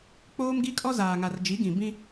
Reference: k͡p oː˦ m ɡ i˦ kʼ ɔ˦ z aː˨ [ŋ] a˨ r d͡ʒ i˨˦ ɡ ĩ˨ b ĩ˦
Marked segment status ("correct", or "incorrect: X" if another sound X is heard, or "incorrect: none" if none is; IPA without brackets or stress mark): correct